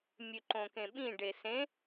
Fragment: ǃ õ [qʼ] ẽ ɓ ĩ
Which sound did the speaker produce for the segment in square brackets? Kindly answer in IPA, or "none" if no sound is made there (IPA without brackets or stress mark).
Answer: k